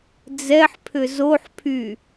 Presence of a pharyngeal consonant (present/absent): present